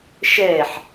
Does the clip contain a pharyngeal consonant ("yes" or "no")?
yes